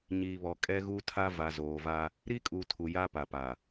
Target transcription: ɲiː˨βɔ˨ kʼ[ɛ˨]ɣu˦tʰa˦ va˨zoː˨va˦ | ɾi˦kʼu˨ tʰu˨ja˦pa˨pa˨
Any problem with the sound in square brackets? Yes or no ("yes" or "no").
yes